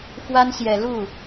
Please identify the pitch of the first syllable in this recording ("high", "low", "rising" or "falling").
high